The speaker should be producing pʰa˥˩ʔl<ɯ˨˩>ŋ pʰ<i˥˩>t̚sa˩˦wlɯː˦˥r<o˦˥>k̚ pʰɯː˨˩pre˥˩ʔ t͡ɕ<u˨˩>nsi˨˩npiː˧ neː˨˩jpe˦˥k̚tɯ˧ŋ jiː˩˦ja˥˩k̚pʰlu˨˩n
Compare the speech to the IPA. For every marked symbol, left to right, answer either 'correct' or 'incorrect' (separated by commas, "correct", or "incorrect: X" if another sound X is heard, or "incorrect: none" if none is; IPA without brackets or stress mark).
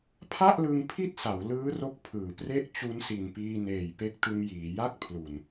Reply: incorrect: ɯ˧, correct, correct, incorrect: u˦˥